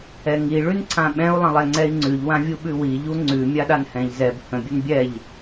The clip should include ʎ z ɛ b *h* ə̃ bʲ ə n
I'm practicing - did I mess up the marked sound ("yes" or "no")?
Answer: no